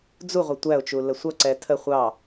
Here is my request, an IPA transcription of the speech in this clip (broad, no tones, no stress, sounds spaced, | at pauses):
d͡z u ʁʷ ə tʷ æ ʊ̯ t͡ʃ u l ə sʷ ʌ ǀ ɛ tʰ ə χʷ ɑ